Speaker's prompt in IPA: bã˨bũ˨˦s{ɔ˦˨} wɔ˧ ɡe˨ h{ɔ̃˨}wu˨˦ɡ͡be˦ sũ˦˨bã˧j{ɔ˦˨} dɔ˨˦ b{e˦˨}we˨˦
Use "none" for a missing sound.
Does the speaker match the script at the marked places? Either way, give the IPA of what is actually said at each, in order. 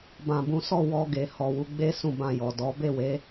ɔ˦˨, ɔ˨, ɔ˨, e˦˨

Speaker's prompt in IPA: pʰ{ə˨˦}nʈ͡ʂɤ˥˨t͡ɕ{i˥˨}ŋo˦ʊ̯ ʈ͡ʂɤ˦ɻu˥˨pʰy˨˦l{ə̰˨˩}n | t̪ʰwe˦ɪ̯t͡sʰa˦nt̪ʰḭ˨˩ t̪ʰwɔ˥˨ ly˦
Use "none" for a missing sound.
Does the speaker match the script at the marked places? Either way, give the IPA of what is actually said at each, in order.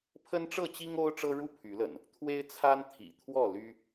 ə˦, i˦, ə̰˨˩

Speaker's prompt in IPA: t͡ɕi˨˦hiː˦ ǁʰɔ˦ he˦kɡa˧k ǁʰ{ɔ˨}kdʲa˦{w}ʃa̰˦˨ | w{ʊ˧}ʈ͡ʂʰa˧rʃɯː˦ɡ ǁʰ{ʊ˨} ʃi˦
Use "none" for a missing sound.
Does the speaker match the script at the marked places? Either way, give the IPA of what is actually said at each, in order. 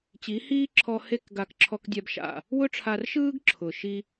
ɔ˦, b, ʊ˦, ʊ˨

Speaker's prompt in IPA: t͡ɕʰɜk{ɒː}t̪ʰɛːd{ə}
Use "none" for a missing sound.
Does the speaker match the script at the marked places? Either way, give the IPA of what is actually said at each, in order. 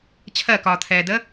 ɒː, ə

